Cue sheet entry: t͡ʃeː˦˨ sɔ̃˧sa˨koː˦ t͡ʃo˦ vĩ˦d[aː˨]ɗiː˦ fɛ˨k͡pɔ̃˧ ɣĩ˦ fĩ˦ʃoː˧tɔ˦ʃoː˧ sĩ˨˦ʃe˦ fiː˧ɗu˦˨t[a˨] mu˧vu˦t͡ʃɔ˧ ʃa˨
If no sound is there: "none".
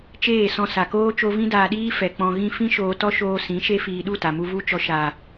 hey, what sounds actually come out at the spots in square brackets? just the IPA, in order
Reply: aː˧, a˨

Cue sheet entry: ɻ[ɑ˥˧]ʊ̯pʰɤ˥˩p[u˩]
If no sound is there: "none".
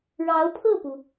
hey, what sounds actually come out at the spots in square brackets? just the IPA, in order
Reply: ɑ˧˥, u˩

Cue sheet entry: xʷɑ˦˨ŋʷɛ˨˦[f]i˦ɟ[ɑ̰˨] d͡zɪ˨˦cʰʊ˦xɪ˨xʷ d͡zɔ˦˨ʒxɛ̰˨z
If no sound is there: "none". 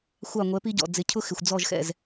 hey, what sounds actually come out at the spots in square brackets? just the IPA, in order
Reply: p, ɔ̰˨

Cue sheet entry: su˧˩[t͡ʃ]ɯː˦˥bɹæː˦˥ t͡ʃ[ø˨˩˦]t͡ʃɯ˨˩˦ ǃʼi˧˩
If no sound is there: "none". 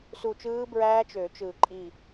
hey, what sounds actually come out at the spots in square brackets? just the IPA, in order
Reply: t͡ʃ, ø˨˩˦

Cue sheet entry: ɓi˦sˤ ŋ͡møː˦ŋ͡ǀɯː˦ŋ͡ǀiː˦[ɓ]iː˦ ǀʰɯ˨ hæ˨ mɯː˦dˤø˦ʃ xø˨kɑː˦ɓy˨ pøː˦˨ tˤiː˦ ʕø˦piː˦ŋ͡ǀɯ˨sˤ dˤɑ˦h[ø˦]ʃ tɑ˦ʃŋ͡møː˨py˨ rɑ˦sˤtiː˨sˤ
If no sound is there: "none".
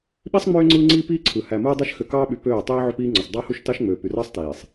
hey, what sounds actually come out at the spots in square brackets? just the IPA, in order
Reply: p, u˦

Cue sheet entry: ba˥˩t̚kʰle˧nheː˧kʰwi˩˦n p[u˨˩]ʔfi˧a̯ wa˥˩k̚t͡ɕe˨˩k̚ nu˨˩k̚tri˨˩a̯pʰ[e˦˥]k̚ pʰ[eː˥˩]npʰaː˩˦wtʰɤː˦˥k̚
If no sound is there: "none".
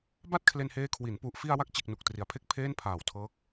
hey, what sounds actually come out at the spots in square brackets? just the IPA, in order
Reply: u˨˩, e˥˩, eː˥˩

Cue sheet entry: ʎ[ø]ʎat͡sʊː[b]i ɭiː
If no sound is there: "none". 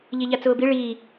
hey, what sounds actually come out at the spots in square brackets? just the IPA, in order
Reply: e, b

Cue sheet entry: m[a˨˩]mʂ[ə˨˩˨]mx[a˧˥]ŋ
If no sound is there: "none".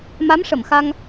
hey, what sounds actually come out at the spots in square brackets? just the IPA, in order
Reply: a˧˥, ə˨˩˨, a˧

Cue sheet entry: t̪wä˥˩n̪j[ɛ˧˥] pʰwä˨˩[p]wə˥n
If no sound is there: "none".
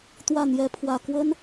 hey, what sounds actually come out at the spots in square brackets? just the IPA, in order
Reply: ɛ˧˥, k

